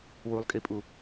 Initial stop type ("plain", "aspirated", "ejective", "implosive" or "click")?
ejective